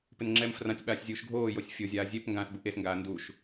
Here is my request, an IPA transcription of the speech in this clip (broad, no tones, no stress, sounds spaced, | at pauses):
p ɪ n ŋ͡ǁ ɛ m f r ã tʲ ɓ aː sʲ zʲ uː ʃ ɡʱ oː j o sʲ fʲ o zʲ aː zʲ e p ŋ ɡ ãː s b u ʔ e s ŋ ɡ aː n d u ʃ